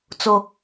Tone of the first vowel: high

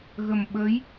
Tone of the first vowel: low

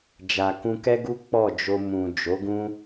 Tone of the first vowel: low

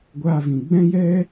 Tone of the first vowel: high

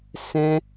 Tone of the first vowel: high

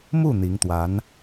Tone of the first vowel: falling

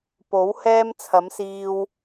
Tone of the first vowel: rising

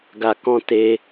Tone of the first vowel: low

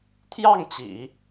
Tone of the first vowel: falling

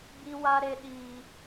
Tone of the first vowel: high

